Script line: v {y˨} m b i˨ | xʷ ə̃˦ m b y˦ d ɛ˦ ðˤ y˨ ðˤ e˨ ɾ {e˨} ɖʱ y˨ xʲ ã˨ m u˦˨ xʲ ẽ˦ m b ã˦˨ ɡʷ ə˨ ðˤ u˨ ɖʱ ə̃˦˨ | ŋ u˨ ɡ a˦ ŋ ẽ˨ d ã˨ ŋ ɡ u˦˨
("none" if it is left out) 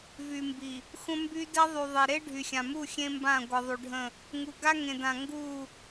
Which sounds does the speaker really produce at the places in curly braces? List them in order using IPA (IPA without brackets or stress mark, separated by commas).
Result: y˨, e˦